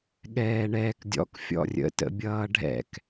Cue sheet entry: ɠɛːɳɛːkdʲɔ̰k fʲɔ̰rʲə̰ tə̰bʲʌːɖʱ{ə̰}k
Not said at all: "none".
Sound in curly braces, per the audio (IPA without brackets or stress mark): ɛ̰